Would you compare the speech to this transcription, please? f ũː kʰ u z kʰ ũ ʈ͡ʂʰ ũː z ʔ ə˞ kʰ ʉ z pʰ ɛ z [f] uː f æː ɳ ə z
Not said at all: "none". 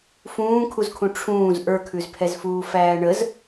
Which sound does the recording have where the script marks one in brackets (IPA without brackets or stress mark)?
f